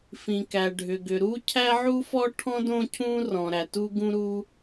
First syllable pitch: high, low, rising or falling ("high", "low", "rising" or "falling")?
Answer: low